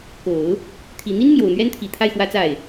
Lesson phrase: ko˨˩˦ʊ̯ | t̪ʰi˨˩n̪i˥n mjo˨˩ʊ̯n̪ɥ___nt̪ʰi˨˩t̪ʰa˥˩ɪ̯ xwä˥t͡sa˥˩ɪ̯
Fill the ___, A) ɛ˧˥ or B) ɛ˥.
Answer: B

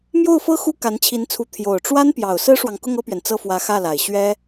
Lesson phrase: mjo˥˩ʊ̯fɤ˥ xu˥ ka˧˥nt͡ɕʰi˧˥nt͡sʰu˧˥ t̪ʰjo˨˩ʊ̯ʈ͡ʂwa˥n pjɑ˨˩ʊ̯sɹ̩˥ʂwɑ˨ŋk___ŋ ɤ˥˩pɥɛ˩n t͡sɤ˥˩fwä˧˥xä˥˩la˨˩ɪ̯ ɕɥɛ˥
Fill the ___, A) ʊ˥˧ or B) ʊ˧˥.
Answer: A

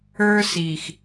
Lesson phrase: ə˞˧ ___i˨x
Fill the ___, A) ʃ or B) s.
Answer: B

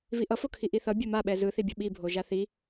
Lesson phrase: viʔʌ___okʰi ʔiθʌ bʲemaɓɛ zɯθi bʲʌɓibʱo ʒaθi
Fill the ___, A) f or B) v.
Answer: A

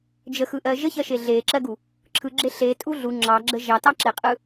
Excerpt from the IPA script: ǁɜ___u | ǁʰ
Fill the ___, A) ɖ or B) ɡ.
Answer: B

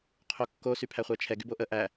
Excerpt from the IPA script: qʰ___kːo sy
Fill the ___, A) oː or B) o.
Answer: B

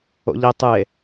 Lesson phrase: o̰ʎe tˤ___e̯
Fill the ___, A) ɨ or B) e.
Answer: A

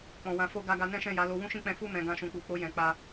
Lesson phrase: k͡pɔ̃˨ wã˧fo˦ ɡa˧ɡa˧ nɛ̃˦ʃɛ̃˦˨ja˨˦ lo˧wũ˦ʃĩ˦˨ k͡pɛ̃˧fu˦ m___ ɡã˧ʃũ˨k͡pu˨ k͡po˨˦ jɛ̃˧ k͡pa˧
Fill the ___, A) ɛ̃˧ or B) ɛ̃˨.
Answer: A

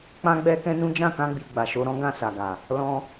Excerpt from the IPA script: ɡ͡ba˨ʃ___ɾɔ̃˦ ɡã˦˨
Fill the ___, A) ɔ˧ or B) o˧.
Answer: B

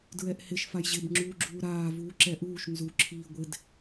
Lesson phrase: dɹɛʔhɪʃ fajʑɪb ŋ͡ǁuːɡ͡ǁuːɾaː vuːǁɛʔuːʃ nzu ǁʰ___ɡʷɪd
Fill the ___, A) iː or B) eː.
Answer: A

